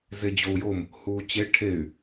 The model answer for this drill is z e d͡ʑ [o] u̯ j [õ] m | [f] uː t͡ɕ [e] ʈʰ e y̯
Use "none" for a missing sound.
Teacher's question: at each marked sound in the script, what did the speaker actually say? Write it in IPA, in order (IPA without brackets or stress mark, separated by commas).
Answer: o, o, h, e